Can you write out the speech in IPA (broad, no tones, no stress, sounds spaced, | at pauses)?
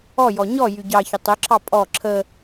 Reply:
ɔ j ɔ ɲ ɔ j y ɟ ɑ ç ə tˤ ɵ ǁʰ ɑ pʼ ɔ ǁʰ ə